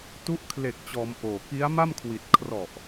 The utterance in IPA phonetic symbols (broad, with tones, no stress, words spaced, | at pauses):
tu˦˥ʔkʰle˨˩k̚t͡ɕɔː˩˦m ʔoː˨˩ki˦˥a̯ma˥˩mkʰwi˨˩t̚ kʰrɔ˨˩ʔ